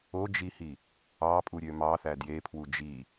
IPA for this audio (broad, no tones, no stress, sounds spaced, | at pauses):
o d͡ʒ i h i | ɑ pʼ u ɾʲ ø m ɑ θ æ d j e pʰ w u d͡ʒ i